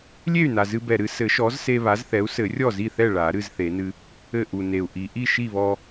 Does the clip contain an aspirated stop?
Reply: no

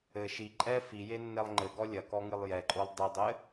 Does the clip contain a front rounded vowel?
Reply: no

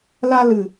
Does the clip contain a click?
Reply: no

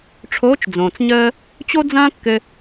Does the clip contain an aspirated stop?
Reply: yes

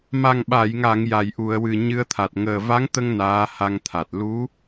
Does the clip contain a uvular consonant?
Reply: no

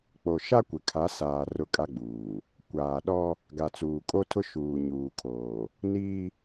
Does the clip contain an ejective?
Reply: yes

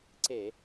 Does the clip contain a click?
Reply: yes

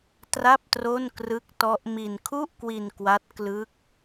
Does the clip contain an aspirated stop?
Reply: yes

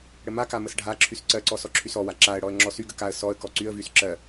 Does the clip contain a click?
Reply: yes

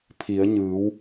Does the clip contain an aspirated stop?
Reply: yes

